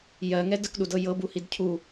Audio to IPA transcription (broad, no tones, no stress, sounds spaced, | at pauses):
j ɜ ŋ ɛ d ə k ɗ u d ɤ j ɤ b u h i d cʰ u